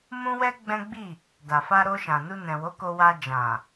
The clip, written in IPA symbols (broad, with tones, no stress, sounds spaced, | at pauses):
m ũ˦ w ɛ˦ ɡ͡b ɛ̃˦ ɡ͡b i˦˨ | d a˨ f a˧ ɾ o˧ ʃ ã˨ n u˧ n ɛ̃˨ w o˨˦ k o˧ w a˧ d͡ʒ ã˨